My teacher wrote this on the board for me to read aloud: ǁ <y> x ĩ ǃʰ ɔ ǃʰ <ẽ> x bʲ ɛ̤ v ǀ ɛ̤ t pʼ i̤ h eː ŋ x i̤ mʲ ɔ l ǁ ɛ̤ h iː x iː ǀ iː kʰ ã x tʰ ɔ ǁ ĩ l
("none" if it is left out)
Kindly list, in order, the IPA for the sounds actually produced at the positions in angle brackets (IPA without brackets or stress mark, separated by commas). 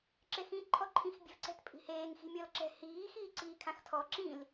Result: e, ĩ